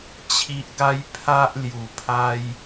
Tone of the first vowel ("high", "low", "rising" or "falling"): low